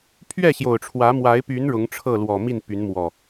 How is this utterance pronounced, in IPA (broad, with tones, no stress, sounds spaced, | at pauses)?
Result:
pʰ ɥ ɛ˥˨ ɕ j o˨˩ ʊ̯ ʈ͡ʂʰ w ä˨˦ m w a˨˦ ɪ̯ p y˨˦ n ɻ ʊ˨˦ ŋ ʈ͡ʂʰ ɤ˥˨ l w ɔ˨˩ m i˥˨ n p y˨˦ n m w ɔ˨˩